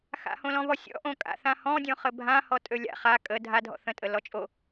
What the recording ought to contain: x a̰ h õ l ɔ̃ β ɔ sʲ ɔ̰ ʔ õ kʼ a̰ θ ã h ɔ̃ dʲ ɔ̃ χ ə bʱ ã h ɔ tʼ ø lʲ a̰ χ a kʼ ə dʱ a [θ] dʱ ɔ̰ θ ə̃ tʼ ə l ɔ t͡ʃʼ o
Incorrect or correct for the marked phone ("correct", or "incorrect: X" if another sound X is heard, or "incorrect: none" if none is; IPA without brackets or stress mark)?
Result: incorrect: none